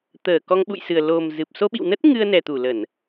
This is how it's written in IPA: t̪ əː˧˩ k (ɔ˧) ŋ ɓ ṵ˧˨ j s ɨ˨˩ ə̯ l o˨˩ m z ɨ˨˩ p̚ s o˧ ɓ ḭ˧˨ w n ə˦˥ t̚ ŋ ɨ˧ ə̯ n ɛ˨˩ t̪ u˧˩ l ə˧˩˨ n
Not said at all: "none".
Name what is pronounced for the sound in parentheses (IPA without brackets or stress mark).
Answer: ɔ˧